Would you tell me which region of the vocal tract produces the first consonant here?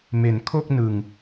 lips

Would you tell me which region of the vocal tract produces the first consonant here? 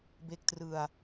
lips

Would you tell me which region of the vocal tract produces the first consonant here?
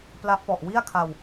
lips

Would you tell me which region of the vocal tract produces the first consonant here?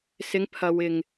tongue tip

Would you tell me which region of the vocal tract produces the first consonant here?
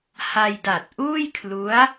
throat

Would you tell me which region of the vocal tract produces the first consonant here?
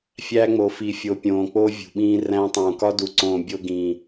lips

